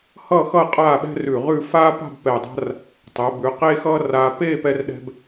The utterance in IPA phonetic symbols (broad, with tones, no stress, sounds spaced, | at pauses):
h ʌː˥˧ x ʌ˥˧ qʼ aː˥˧ ɓ ɛ̤˥ r ʉ˧˩ ʁ ʉ˥˧ f aː˥ p a̤˥˧ b p ɛ˧˩ dˤ a̤˥ r | tˤ ɛ˩˧ b ʉ˩˧ q eː˥ x ʌː˥ r aː˧ p eː˥˧ p ɛ˥ r ɗ ɛ̤˥ b